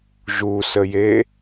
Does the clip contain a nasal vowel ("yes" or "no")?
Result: no